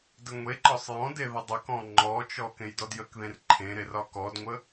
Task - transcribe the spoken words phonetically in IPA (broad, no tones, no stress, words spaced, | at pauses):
dəŋʷeǃɒsˤ jɔ̃de ðədˤəkɔ̃ ŋ͡ǃɔt͡ʃɔ kẽjdɔdjəkðẽr ǃʰẽ ɾerɒkɔdŋʷə